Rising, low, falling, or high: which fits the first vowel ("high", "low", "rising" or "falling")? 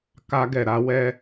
high